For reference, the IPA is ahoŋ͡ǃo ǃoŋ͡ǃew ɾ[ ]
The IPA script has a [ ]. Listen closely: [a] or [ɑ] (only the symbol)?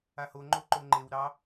ɑ